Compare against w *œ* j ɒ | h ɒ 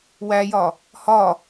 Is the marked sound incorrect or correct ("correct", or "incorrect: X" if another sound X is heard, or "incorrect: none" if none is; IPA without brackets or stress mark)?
incorrect: æ